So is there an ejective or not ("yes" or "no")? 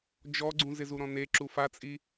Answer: yes